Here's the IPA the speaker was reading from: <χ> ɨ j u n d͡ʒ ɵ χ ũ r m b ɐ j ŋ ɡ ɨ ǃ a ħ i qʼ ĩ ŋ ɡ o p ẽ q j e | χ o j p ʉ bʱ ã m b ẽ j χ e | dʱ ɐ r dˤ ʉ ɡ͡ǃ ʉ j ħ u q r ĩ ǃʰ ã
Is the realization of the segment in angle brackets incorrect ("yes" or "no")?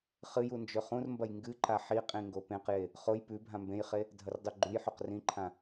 no